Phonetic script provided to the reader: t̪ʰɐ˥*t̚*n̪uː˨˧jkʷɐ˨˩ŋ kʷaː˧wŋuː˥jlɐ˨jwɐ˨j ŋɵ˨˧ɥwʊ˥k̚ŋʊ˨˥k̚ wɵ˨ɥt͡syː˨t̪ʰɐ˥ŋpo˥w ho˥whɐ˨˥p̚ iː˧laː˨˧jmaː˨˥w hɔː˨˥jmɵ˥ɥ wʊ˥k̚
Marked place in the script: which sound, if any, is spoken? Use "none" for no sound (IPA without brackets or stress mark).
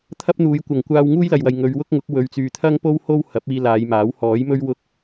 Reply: p̚